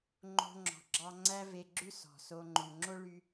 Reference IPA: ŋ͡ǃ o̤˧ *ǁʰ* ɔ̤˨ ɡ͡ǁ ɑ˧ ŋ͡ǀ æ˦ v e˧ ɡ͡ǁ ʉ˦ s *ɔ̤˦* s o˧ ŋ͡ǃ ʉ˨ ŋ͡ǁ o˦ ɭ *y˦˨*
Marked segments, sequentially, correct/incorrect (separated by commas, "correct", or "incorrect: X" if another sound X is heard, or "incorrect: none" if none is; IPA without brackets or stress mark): incorrect: ŋ͡ǁ, incorrect: ɔ̤˨, incorrect: y˦